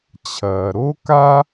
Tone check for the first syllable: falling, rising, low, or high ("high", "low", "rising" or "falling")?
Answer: low